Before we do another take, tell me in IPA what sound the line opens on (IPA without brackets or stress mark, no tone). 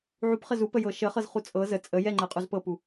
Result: ʕ